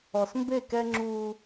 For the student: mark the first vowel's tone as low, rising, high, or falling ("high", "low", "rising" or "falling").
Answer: low